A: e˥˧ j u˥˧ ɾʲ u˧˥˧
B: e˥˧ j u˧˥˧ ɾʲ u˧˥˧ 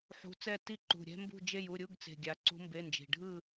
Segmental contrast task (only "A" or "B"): A